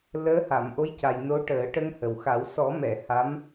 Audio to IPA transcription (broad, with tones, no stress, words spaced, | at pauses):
ləː˧˥ha˨˩˨mʔo˧˥jca˨˩j no˧˥ʈəː˨˩˦ ʈə˧ŋhə˨˩wxa˨˩˦w sɔ˨˩˦mɛ˨˩˨ ha˧˥m